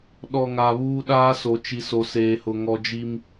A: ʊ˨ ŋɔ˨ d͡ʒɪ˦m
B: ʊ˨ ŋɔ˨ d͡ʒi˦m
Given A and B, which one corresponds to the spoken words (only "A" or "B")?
B